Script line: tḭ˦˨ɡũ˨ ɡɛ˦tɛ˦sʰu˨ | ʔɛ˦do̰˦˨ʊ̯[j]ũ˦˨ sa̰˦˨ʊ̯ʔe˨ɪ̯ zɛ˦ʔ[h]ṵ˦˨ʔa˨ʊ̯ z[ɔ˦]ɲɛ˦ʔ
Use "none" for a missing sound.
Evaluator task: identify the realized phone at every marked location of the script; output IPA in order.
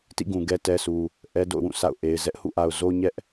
w, h, o˦

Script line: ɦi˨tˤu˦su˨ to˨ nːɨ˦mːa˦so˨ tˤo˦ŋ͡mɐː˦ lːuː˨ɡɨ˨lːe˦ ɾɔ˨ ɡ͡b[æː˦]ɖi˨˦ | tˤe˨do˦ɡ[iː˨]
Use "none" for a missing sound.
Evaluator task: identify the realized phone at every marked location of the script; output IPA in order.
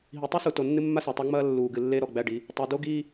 æ˦, iː˦

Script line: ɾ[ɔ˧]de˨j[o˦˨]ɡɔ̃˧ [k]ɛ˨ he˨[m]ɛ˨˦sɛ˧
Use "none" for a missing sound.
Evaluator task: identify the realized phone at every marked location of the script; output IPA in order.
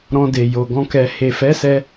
ɔ̃˧, o˨, k, f

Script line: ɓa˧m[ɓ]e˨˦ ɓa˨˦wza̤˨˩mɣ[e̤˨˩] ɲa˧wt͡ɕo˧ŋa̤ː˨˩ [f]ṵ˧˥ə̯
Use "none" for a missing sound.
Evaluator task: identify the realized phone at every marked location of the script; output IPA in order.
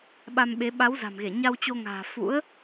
ɓ, e˧˩, f

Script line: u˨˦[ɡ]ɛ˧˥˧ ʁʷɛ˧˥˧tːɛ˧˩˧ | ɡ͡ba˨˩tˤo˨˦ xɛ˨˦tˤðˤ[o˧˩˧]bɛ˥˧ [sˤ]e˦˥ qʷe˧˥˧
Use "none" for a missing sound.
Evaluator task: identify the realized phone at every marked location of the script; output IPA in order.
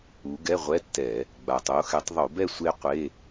ɡ, o˧˩˧, sʷ

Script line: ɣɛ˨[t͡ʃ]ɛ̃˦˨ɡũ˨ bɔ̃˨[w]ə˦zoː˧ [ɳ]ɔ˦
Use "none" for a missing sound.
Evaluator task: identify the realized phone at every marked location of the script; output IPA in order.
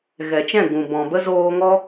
t͡ʃ, b, ŋ

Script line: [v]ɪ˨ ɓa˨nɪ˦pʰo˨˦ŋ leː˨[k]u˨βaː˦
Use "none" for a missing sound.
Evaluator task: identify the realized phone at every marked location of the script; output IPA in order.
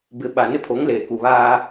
b, k

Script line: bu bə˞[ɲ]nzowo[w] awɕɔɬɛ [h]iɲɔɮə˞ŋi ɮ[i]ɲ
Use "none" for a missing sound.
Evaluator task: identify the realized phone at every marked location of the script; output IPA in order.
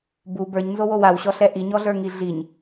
ɲ, w, ʔ, i

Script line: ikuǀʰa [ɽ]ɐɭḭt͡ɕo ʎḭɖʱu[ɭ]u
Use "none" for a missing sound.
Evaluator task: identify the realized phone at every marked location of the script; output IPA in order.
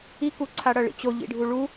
ɽ, ɭ

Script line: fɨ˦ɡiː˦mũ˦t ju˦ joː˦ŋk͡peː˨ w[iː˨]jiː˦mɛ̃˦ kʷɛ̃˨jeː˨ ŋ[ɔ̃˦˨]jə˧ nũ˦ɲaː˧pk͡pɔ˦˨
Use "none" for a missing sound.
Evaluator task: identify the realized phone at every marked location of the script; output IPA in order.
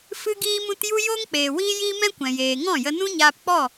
iː˦, ɔ̃˦˨

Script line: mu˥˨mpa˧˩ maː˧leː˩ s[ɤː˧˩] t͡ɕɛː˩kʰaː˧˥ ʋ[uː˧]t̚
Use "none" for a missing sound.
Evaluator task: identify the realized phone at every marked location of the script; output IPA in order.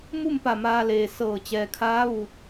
ɤː˧˩, uː˧˩

